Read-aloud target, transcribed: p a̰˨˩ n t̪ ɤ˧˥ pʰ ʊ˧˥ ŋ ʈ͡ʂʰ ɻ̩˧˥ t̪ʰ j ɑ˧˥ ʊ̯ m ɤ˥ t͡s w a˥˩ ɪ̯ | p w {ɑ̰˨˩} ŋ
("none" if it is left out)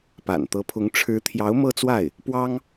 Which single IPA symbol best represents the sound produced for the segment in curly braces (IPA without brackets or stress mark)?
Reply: ɑ˥